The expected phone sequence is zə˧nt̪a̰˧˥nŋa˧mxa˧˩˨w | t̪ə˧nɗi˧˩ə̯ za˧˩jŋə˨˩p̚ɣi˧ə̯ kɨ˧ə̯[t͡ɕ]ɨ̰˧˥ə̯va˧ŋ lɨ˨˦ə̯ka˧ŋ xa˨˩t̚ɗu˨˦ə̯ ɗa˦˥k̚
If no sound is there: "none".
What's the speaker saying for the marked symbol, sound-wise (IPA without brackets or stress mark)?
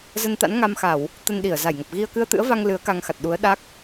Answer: t̪